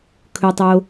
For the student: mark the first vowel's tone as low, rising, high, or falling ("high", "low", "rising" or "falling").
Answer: low